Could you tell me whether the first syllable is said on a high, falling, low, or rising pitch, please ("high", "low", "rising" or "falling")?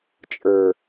low